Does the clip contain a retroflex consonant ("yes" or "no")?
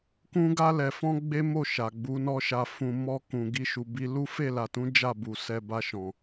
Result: no